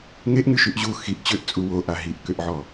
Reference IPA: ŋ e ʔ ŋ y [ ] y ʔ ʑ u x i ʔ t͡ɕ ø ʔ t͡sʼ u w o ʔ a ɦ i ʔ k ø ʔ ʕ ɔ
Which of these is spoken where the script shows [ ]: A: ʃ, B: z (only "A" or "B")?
A